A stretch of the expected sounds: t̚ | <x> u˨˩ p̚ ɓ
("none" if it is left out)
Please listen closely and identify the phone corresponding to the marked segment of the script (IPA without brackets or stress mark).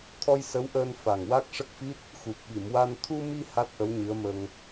x